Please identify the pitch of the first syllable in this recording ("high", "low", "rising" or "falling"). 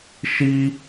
high